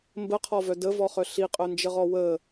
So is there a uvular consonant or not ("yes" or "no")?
yes